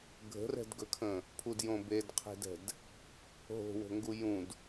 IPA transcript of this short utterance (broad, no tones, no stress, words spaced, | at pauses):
ɡʱə̤rɛ̤dɡɵkʰə̃ | pʰudjõ bedqʰe̤dɛ̤d | ɦo̤wo̤ŋɡu jũd